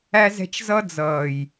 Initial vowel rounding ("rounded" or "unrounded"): unrounded